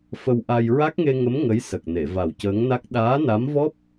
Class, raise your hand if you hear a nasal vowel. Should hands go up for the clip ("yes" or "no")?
no